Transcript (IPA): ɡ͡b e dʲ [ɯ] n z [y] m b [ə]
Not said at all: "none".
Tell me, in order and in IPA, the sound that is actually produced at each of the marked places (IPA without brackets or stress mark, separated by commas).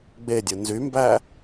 ɯ, y, æ